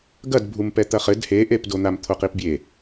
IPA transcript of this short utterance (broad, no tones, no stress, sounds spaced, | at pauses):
ɡ ɐ d bʱ u m p ɛ t̪ ɐ χ ɘ d h e ʔ e p d o n̪ a m t̪ʰ o q i p bʲ e